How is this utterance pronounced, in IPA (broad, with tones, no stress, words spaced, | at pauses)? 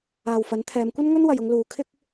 aː˨wfɐ˨˥n t̪ʰɛː˨˧mkʷɐ˥n ŋɵ˥n wɐ˨jʊ˧ŋ luː˨ kʰɪ˥k̚